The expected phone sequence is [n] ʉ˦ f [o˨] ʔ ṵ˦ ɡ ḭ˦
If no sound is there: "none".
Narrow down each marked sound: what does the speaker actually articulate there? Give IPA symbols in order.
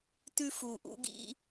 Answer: t, u˨

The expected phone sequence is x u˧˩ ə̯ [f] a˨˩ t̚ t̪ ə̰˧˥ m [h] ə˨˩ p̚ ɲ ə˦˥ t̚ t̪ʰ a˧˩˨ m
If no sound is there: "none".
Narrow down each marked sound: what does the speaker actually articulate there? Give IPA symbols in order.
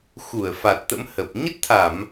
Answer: f, h

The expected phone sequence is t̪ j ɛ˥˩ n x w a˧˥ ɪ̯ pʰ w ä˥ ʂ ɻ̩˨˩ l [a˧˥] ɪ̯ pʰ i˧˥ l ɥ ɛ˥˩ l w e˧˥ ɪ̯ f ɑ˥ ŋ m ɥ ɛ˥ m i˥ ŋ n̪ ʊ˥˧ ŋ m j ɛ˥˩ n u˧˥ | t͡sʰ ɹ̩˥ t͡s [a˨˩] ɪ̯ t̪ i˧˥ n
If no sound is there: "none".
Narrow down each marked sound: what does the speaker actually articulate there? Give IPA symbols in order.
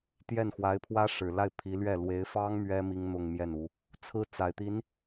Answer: a˥˩, a˨˩

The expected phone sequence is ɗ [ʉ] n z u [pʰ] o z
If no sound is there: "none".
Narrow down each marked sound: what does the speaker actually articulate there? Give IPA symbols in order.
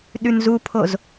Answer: ʉ, pʰ

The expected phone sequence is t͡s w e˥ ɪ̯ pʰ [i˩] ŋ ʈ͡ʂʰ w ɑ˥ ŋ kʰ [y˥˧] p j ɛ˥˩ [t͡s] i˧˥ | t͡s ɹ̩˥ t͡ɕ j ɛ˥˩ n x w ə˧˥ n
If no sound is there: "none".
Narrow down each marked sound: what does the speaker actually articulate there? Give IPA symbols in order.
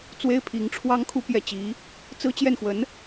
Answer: i˧˥, u˥˧, t͡ɕ

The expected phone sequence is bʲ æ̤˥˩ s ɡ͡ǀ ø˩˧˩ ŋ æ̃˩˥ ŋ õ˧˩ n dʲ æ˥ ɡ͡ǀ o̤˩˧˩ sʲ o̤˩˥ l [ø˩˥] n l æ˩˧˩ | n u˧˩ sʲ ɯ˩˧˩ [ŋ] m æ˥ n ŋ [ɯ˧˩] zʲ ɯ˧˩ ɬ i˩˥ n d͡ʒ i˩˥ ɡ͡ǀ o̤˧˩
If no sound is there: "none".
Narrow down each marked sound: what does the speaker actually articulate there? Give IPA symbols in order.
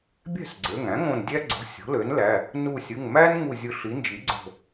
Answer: ø˩˥, ŋ, u˧˩

